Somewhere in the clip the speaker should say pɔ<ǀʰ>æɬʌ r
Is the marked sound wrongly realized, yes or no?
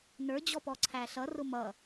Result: no